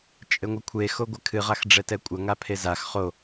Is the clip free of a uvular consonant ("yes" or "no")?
no